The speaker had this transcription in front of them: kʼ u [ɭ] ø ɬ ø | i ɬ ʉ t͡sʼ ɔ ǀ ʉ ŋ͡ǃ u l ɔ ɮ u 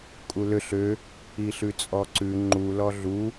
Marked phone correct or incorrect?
incorrect